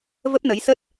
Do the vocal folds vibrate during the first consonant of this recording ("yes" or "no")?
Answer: yes